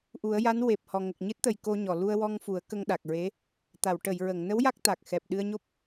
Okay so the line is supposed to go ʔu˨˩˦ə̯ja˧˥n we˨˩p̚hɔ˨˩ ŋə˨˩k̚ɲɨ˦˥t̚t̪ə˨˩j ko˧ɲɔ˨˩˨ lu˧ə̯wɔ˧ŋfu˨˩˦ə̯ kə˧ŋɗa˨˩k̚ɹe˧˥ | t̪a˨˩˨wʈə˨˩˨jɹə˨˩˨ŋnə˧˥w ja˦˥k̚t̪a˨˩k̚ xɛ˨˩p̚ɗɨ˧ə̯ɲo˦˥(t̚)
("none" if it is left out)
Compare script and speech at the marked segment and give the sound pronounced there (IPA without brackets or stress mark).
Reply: p̚